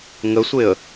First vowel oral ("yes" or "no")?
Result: yes